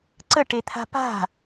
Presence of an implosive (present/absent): absent